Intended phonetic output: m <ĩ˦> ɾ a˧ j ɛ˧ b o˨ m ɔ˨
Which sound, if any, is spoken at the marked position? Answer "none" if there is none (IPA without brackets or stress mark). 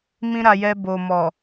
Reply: ĩ˦